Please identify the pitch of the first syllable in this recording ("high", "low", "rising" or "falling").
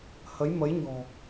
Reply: rising